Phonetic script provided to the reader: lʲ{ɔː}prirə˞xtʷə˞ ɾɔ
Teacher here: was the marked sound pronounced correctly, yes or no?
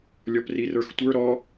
no